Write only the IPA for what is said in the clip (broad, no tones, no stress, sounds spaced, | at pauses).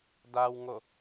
d a w ŋ o